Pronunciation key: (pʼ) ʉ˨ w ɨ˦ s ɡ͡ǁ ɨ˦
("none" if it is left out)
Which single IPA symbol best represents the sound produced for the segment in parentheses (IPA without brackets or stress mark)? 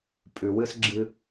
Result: pʼ